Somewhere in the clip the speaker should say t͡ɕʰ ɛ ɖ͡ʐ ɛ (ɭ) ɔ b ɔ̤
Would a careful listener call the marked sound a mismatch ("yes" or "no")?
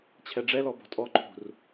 yes